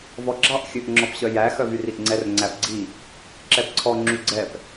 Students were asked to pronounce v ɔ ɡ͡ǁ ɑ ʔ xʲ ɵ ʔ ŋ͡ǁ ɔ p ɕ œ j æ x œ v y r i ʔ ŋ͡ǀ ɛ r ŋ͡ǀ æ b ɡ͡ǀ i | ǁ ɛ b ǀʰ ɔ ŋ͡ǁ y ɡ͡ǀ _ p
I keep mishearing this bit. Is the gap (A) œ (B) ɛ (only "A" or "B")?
B